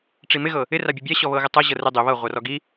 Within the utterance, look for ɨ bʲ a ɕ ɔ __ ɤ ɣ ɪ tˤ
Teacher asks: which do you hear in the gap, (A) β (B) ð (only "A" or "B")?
A